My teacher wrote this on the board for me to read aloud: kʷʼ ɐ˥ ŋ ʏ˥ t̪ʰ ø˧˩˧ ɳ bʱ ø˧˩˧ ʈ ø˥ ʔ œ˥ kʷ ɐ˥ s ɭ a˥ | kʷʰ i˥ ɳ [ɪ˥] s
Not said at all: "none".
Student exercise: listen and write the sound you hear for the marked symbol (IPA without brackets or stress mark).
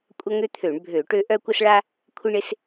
ɪ˥